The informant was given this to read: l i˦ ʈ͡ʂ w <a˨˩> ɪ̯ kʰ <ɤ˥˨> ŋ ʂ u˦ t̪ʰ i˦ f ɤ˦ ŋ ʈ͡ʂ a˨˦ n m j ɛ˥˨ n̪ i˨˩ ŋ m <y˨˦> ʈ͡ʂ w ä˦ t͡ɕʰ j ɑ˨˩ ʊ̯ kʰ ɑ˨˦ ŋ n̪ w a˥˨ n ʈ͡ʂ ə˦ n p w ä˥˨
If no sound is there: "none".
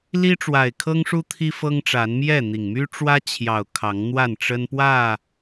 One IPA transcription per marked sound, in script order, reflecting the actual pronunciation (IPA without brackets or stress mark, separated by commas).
a˨˩, ɤ˦, y˦